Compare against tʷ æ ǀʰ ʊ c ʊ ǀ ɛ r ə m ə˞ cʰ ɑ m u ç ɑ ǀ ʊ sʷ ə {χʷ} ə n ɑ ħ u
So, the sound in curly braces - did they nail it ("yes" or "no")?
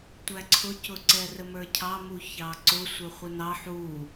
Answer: yes